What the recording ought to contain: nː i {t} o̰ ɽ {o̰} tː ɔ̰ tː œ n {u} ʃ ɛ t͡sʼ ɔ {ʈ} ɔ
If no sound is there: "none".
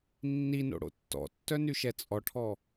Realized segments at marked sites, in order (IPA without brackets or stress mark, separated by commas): n, o̰, y, ʈʰ